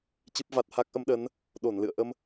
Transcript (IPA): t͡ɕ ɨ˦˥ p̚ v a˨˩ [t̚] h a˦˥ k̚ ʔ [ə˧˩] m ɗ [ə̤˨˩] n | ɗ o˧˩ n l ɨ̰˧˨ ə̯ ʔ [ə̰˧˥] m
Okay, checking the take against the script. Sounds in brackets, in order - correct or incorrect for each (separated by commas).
correct, incorrect, incorrect, incorrect